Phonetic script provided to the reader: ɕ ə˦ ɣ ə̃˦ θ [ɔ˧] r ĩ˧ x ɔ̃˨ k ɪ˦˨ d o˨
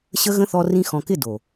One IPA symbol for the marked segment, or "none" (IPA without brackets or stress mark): ɔ˧